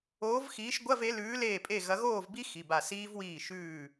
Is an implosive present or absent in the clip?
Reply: absent